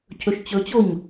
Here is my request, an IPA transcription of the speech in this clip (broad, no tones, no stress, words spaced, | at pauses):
cʰɵʃt͡ɕɵt͡ɕoɲ